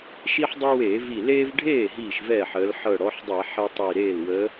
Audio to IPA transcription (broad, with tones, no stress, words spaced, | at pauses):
ʃi˦ħdˤɤ˦weː˧˩˧vi˧˩ leː˦vɖʱeː˥˩ ɦiː˥˩ʃvɛː˥˩ħəː˨˦l ħɤ˧˩ɽɔ˨˦ħdˤɛ˧˩˧ ħe˦tˤi˧˩ɾeː˥˩l wəː˨˦